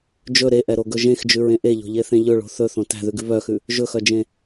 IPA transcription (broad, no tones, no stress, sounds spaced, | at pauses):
d͡ʒ ɵ ɾ e ʔ ɛ ɾ o ɡ ɵ ʒ ẽ x d͡ʒ ʉ ɹ ẽ ʔ e ʎ o̤ ʎ e θ ẽ ʎ ɵ ɭ o̤ θ ɵ θ õ t æ̤ ð ʉ ɡ ʉ β œ x ʉ | ʒ ɵ x œ d͡ʒ ẽ